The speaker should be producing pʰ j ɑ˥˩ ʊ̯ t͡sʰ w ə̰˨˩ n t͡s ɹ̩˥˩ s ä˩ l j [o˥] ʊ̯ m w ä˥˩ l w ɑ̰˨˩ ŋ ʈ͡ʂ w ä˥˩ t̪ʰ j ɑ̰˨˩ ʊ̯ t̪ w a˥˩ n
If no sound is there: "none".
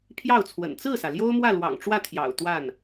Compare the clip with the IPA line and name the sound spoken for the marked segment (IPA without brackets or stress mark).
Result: o˥